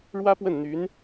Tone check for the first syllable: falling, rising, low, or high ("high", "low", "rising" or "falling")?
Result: high